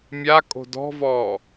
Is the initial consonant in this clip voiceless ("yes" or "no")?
no